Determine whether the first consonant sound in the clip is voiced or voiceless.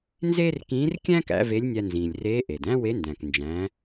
voiced